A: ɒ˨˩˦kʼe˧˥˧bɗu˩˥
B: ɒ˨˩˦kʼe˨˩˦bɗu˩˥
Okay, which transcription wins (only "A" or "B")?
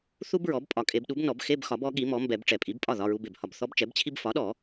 B